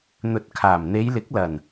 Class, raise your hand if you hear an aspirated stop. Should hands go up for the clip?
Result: yes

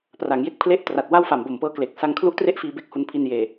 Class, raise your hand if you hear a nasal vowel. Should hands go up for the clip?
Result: no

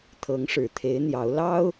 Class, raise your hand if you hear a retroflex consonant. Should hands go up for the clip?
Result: yes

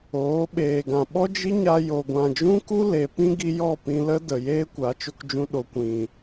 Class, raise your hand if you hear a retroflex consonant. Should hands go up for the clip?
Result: no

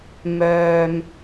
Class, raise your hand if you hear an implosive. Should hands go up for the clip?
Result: no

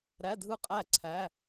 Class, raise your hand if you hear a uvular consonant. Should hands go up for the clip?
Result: yes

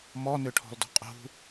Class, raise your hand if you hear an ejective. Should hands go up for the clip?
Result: yes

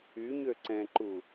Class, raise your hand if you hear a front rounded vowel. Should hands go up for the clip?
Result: yes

